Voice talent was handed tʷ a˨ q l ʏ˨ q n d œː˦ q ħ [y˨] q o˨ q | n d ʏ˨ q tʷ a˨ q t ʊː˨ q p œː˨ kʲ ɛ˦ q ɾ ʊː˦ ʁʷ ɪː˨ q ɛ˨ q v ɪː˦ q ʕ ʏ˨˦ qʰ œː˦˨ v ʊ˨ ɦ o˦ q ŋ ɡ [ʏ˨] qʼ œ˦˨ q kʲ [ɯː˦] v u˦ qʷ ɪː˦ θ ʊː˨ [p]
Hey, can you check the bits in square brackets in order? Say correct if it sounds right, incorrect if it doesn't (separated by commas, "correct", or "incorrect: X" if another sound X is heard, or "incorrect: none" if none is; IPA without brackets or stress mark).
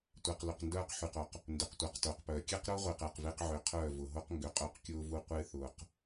correct, correct, incorrect: ʊː˦, incorrect: q